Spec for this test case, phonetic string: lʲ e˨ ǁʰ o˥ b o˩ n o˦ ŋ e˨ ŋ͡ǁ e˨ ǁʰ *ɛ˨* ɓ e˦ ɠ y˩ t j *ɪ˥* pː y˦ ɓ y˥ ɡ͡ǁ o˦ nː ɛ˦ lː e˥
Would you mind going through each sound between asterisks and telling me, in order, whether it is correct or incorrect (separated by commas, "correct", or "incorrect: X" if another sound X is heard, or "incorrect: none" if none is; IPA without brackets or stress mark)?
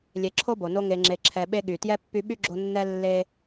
correct, incorrect: ɛ˥